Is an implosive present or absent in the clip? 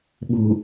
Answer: present